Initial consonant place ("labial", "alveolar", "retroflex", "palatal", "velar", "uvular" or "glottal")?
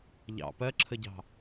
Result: palatal